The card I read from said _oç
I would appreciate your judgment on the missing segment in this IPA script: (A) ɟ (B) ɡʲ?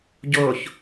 A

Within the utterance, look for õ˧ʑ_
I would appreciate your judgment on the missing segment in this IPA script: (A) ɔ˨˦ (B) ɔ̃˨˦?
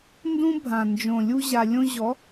A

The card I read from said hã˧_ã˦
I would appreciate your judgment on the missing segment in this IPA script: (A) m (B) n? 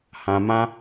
A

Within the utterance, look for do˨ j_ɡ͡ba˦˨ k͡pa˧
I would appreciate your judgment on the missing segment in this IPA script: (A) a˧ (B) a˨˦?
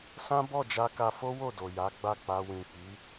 B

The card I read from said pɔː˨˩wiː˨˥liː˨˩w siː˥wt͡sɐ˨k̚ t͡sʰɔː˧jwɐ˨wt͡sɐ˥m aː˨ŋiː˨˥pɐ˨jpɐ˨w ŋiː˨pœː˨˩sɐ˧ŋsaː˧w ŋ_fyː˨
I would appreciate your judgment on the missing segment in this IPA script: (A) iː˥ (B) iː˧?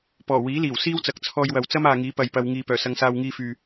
B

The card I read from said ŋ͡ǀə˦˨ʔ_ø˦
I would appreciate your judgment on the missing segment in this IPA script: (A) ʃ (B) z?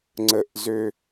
B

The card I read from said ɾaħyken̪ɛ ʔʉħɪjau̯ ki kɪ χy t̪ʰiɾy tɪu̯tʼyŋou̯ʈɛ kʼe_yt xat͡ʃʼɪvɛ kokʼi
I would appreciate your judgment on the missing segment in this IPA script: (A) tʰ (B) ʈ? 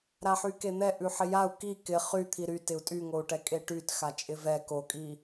B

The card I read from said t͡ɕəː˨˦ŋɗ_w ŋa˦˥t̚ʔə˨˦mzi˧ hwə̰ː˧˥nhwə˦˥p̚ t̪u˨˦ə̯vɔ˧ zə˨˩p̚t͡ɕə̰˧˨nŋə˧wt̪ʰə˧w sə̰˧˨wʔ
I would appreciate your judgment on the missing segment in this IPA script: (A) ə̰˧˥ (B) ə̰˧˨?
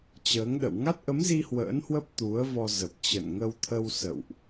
B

